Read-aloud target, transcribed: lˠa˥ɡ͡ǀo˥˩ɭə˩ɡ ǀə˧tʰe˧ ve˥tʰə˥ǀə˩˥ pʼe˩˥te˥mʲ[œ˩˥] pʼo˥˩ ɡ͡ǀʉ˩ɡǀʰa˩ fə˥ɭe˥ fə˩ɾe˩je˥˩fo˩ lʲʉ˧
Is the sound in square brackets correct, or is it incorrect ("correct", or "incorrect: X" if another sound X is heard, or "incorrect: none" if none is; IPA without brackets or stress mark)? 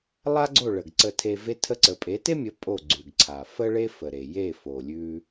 incorrect: ə˩˥